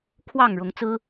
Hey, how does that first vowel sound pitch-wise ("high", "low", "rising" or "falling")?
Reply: falling